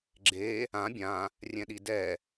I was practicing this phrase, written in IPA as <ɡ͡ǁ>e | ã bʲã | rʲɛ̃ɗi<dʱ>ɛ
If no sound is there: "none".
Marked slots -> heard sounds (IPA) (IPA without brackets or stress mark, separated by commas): ɡ͡ǁ, d